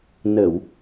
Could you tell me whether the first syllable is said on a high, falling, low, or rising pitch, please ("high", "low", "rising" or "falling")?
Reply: low